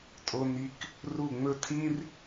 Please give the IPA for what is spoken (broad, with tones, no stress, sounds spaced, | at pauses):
tʼ o˥ n i˥ k | r u˥˧ ŋ͡m ɵ˥ tʰ ĩ˥ r